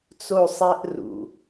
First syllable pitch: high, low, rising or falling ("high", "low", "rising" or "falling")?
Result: falling